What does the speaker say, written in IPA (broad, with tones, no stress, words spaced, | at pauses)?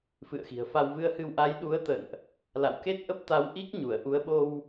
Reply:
fɨ̰˧˨ə̯xi̤˨˩ə̯fa˧w vɨ˧ə̯hɨ˧w ʔa˨˦jɗu˨˦ə̯t̪ə̰˧˨nʔ | la̰˧˨wke˦˥t̚ʔə˦˥p̚ t̪a˨˦w ʔi˦˥k̚ɲu˧˩ə̯ʔu˨˦ə̯ ɓo˧w